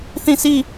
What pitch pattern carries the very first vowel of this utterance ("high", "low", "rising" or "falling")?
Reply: falling